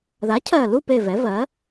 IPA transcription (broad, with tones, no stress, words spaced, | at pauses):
ða˩˥cʰɜ˨˩lu˦˨pe˨˩ vɛ˩˥vɜ˩˥